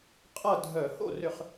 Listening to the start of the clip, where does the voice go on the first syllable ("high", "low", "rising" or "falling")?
falling